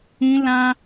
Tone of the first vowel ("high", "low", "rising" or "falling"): high